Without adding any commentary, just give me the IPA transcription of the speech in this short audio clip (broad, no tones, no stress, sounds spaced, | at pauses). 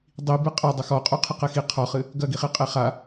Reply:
dˤ i b ɨ qʼ ɐ dˤ ɐ x ɔ qʼ u qʰ ɘ q ɛ x i qʰ ɔ χ ɨ | ɡ ɐ ɡ i χ i qʼ e χ a